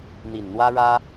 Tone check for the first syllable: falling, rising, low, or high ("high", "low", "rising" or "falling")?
low